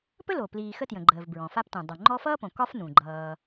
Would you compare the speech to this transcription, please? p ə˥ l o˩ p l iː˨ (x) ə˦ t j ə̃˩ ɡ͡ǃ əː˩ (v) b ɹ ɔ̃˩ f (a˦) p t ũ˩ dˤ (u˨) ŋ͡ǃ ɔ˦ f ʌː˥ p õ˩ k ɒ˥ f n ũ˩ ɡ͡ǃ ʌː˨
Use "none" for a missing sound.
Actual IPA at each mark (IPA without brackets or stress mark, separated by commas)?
x, v, a˦, u˩